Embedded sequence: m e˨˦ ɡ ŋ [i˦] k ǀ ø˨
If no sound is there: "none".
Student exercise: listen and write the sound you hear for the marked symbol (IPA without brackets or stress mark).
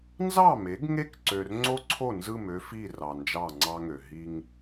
e˦